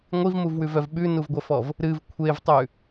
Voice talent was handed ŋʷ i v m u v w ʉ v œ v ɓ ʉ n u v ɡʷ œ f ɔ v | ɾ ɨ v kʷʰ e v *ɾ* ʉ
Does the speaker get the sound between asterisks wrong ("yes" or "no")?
yes